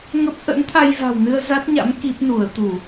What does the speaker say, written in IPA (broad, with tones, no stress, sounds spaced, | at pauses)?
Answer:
ŋ ə˦˥ p̚ ʔ ə̰˧˥ n t̪ʰ a˧ j v a̤˨˩ w n ɨ˧ ə̯ z a˦˥ t̚ ɲ a̰˧˥ m k i˦˥ p̚ n u˧˩ ə̯ t̪ u˧˩˨